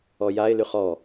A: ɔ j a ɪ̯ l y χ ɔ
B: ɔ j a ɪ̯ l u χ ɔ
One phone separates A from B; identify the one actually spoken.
A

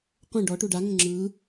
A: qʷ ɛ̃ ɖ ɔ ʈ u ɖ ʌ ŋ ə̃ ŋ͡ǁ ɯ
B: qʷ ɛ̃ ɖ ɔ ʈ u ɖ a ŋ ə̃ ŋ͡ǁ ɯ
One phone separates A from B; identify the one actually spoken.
B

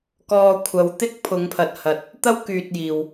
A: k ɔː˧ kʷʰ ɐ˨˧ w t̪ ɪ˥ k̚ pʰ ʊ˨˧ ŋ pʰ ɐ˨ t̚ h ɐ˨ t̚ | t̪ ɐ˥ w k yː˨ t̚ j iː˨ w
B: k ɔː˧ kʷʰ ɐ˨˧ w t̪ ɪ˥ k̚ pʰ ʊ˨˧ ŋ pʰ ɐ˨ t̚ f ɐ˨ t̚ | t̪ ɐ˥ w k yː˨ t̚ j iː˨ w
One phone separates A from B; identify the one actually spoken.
A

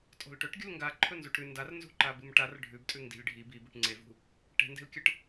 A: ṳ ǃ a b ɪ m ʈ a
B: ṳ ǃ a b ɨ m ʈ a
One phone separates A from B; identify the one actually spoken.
B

